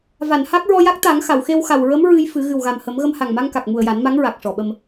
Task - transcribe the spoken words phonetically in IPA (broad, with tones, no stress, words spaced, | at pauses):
va˨˩˨nha˦˥k̚ ɹɔ˧ja˦˥k̚t̪a˨˩˦ŋ xa˨˩˨wxe˧wxa˨˩w ɹə˧˥m ɹɨ˧jfɨ˨˩˦ ɣɨ˨˩wɣa˨˩mhə˨˩˦m ɣə˧mha˨˩ŋma˧ŋka˨˩k̚ mu˨˩ə̯ja˨˩˦nma˧˥ŋɹa˨˩k̚ ʂɔ˨˩˨ɓə˧m